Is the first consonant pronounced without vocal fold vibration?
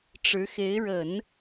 yes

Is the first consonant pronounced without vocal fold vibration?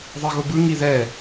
no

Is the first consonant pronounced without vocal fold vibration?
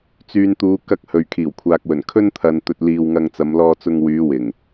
yes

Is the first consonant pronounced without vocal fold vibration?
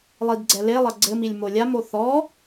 no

